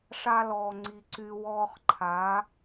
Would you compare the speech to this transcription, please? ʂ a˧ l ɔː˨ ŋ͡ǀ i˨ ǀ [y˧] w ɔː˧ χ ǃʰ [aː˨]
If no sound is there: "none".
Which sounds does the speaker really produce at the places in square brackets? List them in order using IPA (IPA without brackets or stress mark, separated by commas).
y˧, aː˨˦